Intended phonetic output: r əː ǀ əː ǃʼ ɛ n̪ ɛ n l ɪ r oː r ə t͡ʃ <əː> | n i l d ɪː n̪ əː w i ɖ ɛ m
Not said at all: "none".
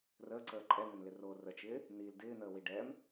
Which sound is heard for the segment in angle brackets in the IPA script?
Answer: ɪː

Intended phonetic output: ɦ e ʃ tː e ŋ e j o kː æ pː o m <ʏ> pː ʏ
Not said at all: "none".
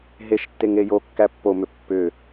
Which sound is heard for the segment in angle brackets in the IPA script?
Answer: ʏ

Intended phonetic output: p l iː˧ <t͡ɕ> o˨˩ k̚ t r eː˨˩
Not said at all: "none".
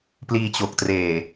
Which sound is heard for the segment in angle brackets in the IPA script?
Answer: t͡ɕ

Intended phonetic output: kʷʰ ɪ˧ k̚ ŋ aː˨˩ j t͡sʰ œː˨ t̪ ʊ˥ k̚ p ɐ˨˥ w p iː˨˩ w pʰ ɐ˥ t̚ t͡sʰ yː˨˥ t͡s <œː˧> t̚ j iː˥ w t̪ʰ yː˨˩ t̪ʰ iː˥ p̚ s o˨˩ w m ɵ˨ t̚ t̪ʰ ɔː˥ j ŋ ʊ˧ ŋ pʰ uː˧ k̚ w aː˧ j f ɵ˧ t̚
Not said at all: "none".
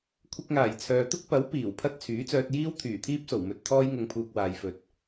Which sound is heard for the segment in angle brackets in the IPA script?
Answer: œː˧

